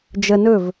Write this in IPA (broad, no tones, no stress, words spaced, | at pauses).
d͡ʒə nɵv